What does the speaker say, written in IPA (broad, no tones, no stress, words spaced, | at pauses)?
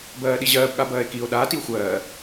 bɜːɗiʑɜːb ɠabɜːe̯kio̯ ɗaː tio̯xʷɜː